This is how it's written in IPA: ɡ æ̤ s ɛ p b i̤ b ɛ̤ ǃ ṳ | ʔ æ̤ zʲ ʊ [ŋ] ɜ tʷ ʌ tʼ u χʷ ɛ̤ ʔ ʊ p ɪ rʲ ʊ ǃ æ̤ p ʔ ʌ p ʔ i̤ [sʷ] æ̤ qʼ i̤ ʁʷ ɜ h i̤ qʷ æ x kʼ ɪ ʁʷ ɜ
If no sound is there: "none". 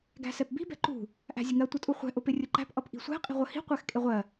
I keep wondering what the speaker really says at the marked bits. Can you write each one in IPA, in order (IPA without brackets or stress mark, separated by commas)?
ŋ, sʷ